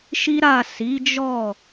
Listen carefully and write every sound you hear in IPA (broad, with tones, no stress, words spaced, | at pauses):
ʃi˦ɾa˦˨ si˨˦d͡ʒɔ˦˨